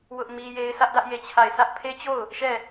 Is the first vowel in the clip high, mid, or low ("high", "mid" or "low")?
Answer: high